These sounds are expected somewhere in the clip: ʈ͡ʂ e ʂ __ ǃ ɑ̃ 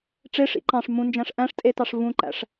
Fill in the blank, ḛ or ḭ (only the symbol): ḭ